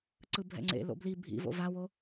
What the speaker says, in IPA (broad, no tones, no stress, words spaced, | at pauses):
ǀɯbʱɛ̰ŋ͡ǀḛ lo̰bli bʱḭvo̰ vawo